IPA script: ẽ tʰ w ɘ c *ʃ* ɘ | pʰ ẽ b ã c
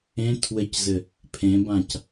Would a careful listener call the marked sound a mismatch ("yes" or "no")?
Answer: yes